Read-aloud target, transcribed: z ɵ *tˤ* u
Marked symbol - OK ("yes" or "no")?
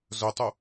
yes